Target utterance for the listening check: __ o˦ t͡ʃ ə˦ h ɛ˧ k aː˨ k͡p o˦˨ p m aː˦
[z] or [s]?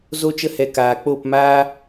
z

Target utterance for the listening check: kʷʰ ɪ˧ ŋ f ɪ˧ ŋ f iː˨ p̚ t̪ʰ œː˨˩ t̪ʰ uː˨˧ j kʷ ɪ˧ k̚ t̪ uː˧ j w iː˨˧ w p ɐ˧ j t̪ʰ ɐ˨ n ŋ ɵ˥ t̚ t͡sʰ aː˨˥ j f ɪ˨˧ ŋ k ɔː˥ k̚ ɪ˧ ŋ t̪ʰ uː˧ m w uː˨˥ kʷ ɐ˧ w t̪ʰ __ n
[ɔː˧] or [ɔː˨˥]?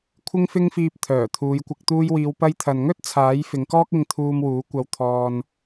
ɔː˧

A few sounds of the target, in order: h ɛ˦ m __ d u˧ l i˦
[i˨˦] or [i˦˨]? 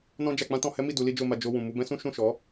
i˦˨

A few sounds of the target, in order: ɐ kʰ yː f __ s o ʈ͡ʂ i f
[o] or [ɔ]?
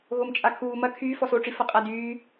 ɔ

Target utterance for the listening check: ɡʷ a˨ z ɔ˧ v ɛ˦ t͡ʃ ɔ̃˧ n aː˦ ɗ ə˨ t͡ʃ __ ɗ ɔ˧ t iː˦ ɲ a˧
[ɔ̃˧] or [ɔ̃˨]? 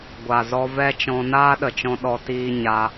ɔ̃˧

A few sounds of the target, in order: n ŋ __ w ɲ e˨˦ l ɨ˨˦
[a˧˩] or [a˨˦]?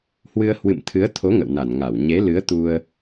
a˧˩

